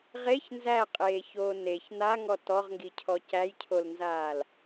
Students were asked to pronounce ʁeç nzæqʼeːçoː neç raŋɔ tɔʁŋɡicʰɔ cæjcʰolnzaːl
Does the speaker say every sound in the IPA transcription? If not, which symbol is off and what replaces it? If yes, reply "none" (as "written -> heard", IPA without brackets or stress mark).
r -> n̪